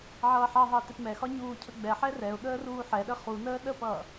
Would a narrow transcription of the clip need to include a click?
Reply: no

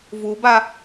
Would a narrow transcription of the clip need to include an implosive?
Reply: no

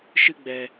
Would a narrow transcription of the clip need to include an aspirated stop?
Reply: no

